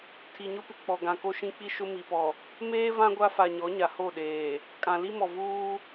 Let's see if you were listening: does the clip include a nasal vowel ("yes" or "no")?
yes